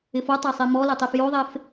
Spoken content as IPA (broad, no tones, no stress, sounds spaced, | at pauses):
ɪ f o tˤ a sˤ e m ɔ l ɪ tˤ e f j o ðˤ e f